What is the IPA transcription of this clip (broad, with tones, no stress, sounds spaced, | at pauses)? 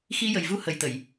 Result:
x i˧ j ə˨˩ j v u˧ h ə˨˩ j t̪ ə˨˩˨ j